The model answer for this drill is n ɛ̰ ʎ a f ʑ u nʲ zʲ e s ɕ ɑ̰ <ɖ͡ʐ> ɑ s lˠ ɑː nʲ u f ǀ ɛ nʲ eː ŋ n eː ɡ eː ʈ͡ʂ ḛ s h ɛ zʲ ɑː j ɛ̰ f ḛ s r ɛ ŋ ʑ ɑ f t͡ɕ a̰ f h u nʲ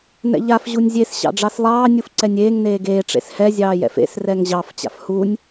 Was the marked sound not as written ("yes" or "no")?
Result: no